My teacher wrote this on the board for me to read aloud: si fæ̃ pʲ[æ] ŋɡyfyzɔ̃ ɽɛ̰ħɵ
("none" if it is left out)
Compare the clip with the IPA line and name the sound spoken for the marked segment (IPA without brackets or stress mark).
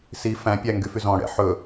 æ